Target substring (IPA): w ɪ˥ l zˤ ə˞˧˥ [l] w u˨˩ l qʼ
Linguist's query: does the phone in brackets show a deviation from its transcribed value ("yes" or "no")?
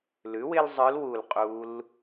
no